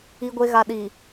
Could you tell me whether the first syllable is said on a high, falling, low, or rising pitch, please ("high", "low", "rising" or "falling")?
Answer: low